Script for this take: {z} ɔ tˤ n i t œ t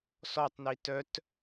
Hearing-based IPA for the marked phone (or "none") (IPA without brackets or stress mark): s